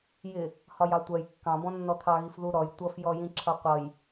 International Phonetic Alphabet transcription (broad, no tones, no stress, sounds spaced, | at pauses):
j ɪ | h ɒ j ɑ tʷ ɜ j kː ɑ̃ b ɔ̃ nː ɔ t̪ʰ ɑ ɣ i f ð u ɾ ɔ j tʷ ʌ f j ɔ j ĩ ǁʰ ʌ qʷ ʌ j